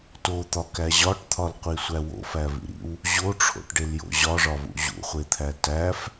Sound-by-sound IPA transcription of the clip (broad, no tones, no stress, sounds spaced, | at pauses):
t o t̪ ɒ k æ ʑ ɒ ʈ t̪ʰ ɒ l qʷ i sʷ æ w o̰ f æ v ḭ ɾ ḭ w | ʑ o ʈ͡ʂʰ o̰ ʈ ɖ e l j o̰ ʑ ɒ ʐ ɒ v ṵ ʑ ṵ χʷ e t̪ʰ æ t æ f